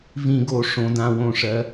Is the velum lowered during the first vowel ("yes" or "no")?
yes